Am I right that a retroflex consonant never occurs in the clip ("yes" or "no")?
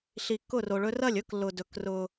no